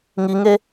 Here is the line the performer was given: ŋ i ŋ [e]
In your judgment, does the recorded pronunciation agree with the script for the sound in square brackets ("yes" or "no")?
yes